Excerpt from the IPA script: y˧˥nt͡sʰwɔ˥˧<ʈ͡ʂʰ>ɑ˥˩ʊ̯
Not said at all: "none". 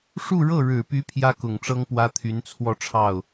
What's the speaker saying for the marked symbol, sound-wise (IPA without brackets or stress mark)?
ʈ͡ʂʰ